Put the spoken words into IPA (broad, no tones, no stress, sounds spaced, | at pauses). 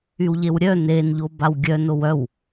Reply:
y w ʎ e w ɾʲ œ n e n ʎ o b a w ɡʲ œ n o w œ w